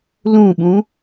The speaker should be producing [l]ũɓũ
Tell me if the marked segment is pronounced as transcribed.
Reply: yes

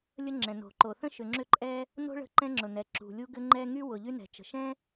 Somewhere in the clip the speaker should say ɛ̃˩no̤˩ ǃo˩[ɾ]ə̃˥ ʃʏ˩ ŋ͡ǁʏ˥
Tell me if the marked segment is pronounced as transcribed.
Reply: no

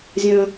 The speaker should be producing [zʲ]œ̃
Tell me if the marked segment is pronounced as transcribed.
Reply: yes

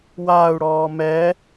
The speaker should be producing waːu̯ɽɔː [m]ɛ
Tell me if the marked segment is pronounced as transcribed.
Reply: yes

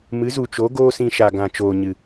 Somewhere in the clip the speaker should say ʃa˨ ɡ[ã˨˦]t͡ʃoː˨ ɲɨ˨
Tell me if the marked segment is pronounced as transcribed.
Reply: no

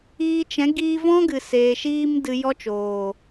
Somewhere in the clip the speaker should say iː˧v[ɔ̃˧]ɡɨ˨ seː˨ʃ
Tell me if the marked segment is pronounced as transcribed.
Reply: no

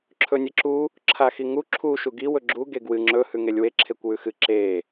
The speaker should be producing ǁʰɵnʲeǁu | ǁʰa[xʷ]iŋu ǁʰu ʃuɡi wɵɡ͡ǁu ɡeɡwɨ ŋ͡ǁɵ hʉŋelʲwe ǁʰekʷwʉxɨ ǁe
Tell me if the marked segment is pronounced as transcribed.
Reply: no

